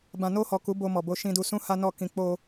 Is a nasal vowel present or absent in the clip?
present